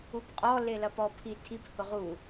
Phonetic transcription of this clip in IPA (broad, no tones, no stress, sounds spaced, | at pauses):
u p qʼ ɔ l e l ɐ p ɔ pʰ i tʰ i p h ʊ ʁ u